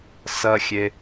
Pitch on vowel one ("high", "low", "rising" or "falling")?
high